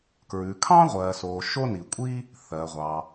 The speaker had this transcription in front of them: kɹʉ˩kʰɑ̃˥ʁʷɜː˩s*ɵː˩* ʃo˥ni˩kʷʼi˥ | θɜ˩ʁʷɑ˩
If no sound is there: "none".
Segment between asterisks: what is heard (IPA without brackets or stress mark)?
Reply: oː˩